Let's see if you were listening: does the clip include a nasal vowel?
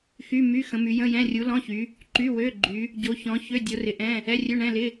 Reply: yes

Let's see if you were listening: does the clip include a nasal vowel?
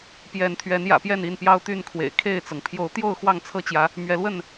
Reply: no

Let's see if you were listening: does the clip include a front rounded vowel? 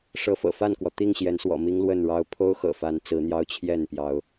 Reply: no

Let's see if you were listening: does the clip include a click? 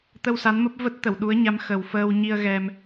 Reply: no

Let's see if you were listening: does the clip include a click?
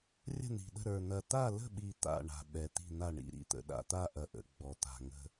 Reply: no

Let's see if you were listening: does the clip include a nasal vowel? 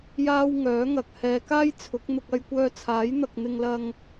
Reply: no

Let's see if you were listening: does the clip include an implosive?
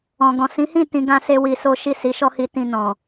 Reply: no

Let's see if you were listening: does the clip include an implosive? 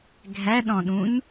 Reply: yes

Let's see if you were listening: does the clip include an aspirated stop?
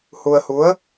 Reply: no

